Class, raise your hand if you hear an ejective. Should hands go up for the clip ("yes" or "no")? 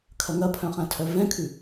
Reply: no